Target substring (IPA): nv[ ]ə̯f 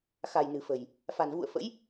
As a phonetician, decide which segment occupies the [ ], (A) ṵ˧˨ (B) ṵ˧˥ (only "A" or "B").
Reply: A